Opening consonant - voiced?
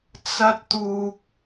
no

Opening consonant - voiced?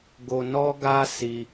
yes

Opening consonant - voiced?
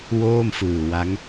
yes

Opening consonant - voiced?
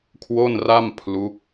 no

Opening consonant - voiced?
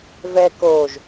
yes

